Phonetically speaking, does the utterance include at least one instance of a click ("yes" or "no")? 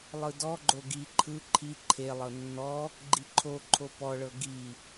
yes